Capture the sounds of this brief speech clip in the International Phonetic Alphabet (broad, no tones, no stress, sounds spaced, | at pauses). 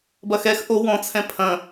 b ɐ x ɛ x ʔ o w ɔ̃ t͡sʰ ɛ̃ pʰ ɐ̃